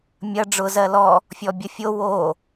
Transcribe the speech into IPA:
mʲɐ ɖ͡ʐʊ zɜlɔ | fʲɔbʲɐfʲo wo

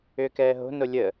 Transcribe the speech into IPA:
ʏːkɛːɦo̤ nolʲə

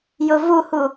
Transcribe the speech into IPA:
jʊvuhu

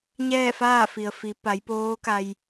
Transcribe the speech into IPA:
ɲɛː˥˨faː˥˨fi˩ə̯ fi˩˧pa˩˧jpoː˧˥ka˧j

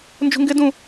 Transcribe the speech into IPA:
nd͡ʒṳŋɡɪdũ

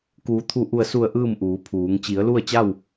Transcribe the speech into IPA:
kuː˩˧t̪ʰu˧˩ʔu˧˩ə̯su˧˩ə̯ ʔɯː˥˨mʔuː˩˧pʰuː˩˧ŋ t͡ɕi˩˧ə̯ lu˥˨ə̯t͡ɕa˥˨w

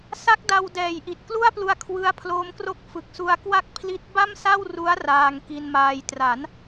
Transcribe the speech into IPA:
sa˦˥k̚da˧wdɛː˨˩jʔi˨˩t̚ klu˥˩a̯plu˧a̯ kʰwɯ˦˥a̯pʰloː˦˥mkro˥˩k̚ fɯ˨˩k̚su˧a̯kwa˥˩k̚pʰli˦˥t̚ ba˥˩msa˥˩w ru˦˥a̯ raː˧ŋki˧nmaː˧j tra˩˦n

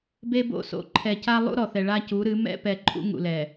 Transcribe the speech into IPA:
be˦bo̰˦˨ so̰˨ǃʰɛ˨ca˦ lˠṵ˦ ɾɔ˨θɛ˨ ɭa˦cu˨˦ɾɨ˨˦ mɛ̰˦ pɛ˨ǃʼṵ˦ ŋṵ˨lɛ˨

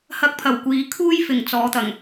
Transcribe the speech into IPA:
hɐ˧k̚pʰɐ˨˩wkʷiː˨˧ kʰuː˥jfɪ˨˩ŋ t͡sɔː˨˧t̪ɐ˨˩ŋ

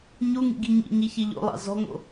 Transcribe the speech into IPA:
ɲuŋḭɡi ɲḭɲiçi ʎo̰lˠɑ̰ zɔ̤ŋo̰

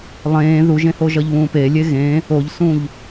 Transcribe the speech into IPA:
lˠẽː ðuʒẽhoʒʌʎ βũːpe lʲeɣẽː | oʎsũʎ

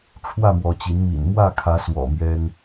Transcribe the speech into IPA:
ʈ͡ʂʰwä˥˨mwɔ˨˦ t͡ɕi˨˦nmḭ˨˩n mwä˥˨kʰä˨˦swɔ̰˨˩ mɥɛ˦n

